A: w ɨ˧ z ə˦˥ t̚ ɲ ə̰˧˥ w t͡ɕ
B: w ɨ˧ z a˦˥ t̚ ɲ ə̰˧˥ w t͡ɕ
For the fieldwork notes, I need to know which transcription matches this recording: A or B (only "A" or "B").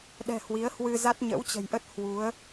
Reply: B